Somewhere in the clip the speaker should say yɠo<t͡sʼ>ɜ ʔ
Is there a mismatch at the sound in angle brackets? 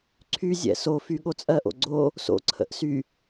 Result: no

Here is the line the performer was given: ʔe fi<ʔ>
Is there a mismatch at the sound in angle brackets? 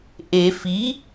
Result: yes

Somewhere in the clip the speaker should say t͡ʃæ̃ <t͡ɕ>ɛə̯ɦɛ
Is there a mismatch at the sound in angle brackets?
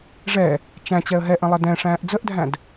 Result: no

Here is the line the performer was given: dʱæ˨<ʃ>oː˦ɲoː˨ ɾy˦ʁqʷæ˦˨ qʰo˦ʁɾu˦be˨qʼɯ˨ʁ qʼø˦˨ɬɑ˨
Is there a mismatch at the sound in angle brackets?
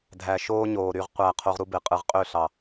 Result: no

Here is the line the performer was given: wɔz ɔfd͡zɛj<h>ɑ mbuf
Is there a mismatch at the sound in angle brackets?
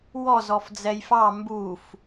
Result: yes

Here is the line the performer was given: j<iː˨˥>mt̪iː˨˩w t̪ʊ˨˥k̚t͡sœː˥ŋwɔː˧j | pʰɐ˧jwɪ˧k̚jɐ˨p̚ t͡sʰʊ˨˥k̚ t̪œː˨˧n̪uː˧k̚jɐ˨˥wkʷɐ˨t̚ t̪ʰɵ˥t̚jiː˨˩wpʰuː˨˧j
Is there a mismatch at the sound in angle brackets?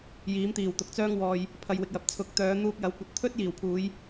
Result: no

